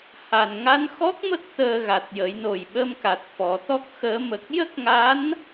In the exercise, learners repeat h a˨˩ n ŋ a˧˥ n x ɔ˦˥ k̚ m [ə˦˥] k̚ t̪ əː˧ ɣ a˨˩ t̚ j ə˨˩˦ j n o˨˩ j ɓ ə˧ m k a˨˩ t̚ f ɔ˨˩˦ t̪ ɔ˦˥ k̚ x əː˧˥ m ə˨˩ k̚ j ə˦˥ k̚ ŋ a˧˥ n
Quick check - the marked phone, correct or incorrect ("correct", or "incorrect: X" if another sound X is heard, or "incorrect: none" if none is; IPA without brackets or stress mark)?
correct